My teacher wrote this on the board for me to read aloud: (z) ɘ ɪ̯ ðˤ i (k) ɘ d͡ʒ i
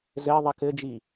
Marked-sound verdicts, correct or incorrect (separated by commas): correct, correct